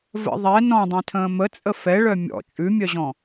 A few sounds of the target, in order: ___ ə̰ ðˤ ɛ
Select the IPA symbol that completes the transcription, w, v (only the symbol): v